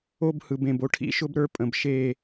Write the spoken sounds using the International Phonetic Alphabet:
o˦ b h ɯ˨ b ẽ˨ b o˦ ʈʰ ḭ˦ ʃ ʊ˦ b ɾ ə˞˦ pʼ ə̃˨ b ʃ e˦˨

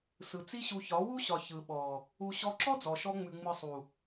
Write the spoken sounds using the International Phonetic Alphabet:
s ɯ˨ t͡s i˦ ɕ u˧ ç ɒ˨˦ w u˦ ɕ ɒ˨ ç ɯ˨ ɓ ɔ˨ | u˨ ɕ ɔ˧ ǁ ɔ˦ d͡z ɔ˨ ʃ ɔ˧ ŋ͡m ʉ˨ ŋ͡m ɯ˨ sˤ u˨

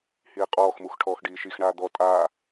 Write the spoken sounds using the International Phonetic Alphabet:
h iː qʼ ɔː x m u x ʈʰ ɔː x ɖ iː ʃ i x ɳ aː d̪ ɔ tʼ aː

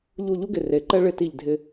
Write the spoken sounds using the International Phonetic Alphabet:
ʎ u˧˩ ʎ u˥ ɡ ɪ˧˩ r e˩˧ ǃ ɛ˥ ɭ ɪ˧ t i˧˩ ʎ dʱ ɪ˧

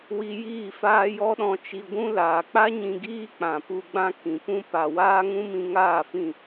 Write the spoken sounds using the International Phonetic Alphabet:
w i˧ j iː˦˨ f aː˦ j ɔ˦ ɗ ɔ̃˧ t͡ʃ i˧ ɡʷ ũ˦ l aː˨ k͡p a˦ ɲ ĩ˧ ɡ iː˦ k͡p ã˨ p u˧ ɡ͡b ã˦ k ĩ˨ p ũ˦ p a˨ w aː˦ ŋ ũ˦ m ĩ˧ ŋ aː˦˨ f ĩ˦˨

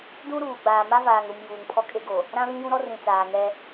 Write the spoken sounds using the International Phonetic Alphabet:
d ũ˦ ɾ uː˨ ɡ͡b aː˨ m a˦ v aː˨ ŋ ɾ u˨ m j uː˨ ŋ pʰ ɔ˦ kʼ e˦ ɡ o˨ | ɾ ã˦ β ĩ˦ j ũ˦ ɾ ɔ˦ r ĩ˨ t͡s aː˨ ŋ ɛ˦

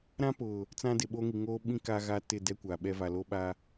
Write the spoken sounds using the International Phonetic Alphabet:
ɾ ã˦ p ʊ˨ | t͡s ã˦ d ɪ˨ ɓ o˦ ŋ i˨ ŋ oː˦ ɓ ĩ˦ k a˦ ɣ a˦ t ɪ˦˨ d ɛ˦ kʷ a˨ ɓ ɛ˦ v a˨ l o˦ ɓ a˦

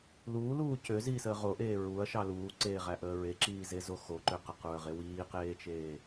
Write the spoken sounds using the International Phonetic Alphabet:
l uː l uː c ø z iː s əː ʁ o ʔ eː ɹ u ɐ̯ ʃ ɑ l uː ǀ eː ʁ æ ʔ əː ɹ e ǁ iː z e z o x o ǃ ø q ə q ɹ ə ʁ e w iː q eː t͡ʃ eː

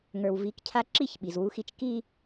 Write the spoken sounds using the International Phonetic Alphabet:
ŋ ə˞˨ w v i˨˦ k cʰ a˦ ǁ i˦˨ ç ɓ i˨ z w u˦ x i˦ t͡ʃ k i˦

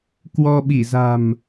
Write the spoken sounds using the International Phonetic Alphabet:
k w ɔ˧ ɓ i˧˩ z a̤˨˩ m

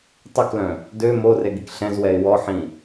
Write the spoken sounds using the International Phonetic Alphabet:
tˤ ø k l œ̃ | d ø m o r e ɡ i k ɬ ɛ̃ z w ɛ ɪ̯ w ɔ ħ ĩ

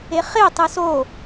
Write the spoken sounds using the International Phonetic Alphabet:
e χ e tˤ ɨ s o

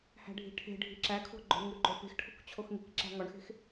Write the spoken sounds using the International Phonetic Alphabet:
h æ̤ ɖʱ i̤ ʈʰ e̤ ɖʱ i̤ ǁ æ kʰ o̤ ɡ͡ǃ o̤ ɳ ŋ u ɡ͡ǃ o p e̤ x ʈʰ o̤ k t͡ɕʰ o x ŋ i̤ k ǁ æ̤ ŋ ɒ ɳ x e̤ x

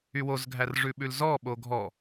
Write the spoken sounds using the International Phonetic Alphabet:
y w o z ɡʱ æ r ʐ ʉ ɓ ʉ l z ɔ ɓ o ɡʱ ɔ

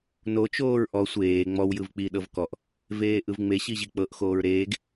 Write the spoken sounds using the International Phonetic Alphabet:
n o t͡ʃ oː ɹ ʔ ɔ sʷ eː ŋ͡m ɔ w j ɯ v k͡p i ɗ ɤ v k ɔ ʔ | v eː ʔ ɯ v ŋ͡m e ɕ i ʑ i k͡p ɤ ʔ x oː ɹ ɾ eː ɡ

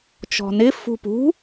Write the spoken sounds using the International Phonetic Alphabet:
t͡ʃ ɔ̤ n ɪ f ṳ p ṳ

